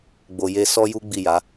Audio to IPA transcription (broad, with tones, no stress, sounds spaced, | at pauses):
ɡ͡b o˨ j e˧ s ɔ˦ j u˦ ɡ͡b i˦˨ j a˨˦